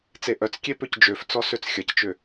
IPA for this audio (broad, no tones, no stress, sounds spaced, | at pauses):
t͡s e ʔ œ t͡s kʲ e p ø c d͡ʒ ø f t͡s ɔ s ø t͡s xʲ ɐ c t͡ʃ ʏ